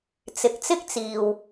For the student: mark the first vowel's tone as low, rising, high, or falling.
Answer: low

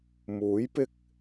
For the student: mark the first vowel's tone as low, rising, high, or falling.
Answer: rising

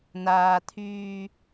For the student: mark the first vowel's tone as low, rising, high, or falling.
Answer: low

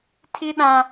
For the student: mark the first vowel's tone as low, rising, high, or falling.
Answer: high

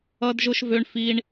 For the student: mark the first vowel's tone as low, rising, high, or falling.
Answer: high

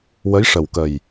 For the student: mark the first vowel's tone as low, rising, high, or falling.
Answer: rising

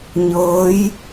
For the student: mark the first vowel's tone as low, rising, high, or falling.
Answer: rising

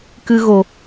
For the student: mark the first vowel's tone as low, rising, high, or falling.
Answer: high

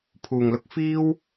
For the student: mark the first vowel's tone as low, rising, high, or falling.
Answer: low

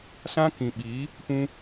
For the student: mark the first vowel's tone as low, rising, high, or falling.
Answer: high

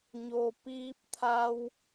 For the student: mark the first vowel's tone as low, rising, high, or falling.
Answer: low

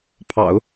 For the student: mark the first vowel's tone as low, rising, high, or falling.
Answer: low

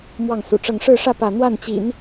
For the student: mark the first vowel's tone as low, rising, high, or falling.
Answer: falling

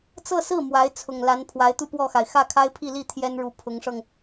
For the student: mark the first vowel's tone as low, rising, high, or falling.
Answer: falling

